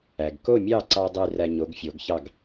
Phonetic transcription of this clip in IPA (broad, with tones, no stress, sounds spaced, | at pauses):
æ˩ ɡ k o˥˩ mʲ ɑ˥˩ ǀ ɑ˥ dˤ y˥˩ r æ˧ ɲ o˩˥ ɡ fʲ o˩˥ ɡ ç ɑ˥˩ ɡ